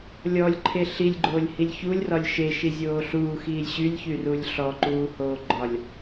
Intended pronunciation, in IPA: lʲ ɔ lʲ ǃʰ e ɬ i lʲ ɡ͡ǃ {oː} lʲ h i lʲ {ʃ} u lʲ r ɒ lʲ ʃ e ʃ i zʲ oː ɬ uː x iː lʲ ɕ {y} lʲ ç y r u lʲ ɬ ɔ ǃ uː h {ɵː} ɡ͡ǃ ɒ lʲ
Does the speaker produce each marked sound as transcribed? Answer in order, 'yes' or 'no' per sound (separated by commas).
yes, no, yes, no